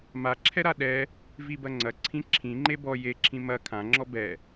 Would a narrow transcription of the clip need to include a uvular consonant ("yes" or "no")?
no